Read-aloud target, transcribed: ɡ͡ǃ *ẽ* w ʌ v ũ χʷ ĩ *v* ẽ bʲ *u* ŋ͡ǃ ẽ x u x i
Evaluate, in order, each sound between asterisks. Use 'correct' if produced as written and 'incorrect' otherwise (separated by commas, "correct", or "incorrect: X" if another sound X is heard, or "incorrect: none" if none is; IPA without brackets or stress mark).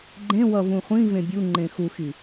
correct, correct, correct